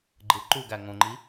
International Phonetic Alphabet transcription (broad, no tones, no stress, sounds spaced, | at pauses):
ɡ͡ǃ ɯ ǃ u ɡ æ ŋ õ ŋ͡ǃ i